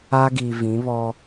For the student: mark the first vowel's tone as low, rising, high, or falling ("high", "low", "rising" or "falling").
high